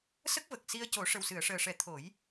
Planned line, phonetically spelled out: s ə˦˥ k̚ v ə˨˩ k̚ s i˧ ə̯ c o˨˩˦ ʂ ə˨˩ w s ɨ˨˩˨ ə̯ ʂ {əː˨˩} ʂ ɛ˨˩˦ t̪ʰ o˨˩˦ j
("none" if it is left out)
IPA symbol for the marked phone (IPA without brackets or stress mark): əː˨˩